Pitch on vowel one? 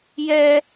high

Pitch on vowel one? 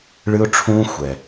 high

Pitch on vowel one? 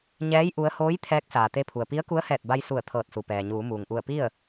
rising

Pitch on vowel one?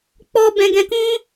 high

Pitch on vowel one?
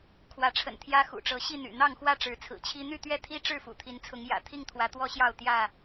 rising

